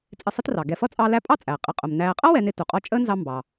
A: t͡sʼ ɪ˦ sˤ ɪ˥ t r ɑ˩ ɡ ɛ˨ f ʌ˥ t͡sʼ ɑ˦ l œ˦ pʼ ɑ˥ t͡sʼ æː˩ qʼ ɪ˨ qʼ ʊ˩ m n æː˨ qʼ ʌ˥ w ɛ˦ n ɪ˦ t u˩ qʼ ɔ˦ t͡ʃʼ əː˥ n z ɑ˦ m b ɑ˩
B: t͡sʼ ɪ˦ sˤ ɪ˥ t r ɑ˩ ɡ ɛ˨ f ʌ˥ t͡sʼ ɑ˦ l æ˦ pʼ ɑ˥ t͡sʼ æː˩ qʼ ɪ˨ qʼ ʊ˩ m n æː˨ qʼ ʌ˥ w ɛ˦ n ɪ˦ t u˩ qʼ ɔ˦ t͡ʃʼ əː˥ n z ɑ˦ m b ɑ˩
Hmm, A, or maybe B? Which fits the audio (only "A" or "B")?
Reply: B